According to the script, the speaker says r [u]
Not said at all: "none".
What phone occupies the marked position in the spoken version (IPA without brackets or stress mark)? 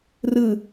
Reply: ɯ